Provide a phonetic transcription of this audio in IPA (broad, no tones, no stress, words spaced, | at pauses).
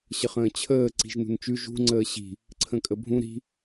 ɕəχə̃ːt͡ɕʰəː ǀi̤ʒnṳnt͡ʃʉ ʒṳ ŋ͡ǀəːɕi̤ | ǀʰə̃kʼəbʱũ ɾi̤